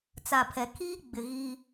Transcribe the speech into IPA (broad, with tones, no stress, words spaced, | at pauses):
t͡sa˨pʰɛ˨ kʰiː˦ ɡ͡bɪ˨ ɣi˦